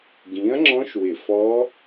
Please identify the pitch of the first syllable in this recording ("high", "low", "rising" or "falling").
rising